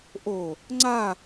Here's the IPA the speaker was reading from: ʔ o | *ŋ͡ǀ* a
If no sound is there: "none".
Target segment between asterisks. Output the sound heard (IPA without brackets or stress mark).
ŋ͡ǀ